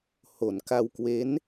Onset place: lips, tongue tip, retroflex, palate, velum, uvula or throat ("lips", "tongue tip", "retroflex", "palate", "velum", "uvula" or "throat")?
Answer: throat